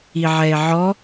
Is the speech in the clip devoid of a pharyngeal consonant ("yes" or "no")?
no